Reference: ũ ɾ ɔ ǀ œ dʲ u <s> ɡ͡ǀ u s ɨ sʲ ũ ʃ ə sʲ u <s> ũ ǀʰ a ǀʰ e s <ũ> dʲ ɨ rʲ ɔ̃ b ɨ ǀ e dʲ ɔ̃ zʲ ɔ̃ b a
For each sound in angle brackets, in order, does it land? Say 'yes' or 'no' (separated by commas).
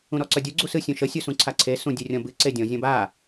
no, yes, yes